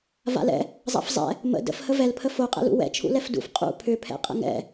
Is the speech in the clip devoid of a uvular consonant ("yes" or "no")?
no